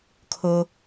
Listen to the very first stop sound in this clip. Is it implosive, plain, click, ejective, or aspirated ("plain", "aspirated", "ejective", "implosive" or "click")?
aspirated